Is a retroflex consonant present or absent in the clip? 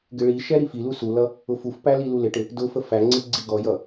present